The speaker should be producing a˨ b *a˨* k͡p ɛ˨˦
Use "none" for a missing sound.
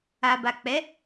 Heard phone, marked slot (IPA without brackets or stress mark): a˨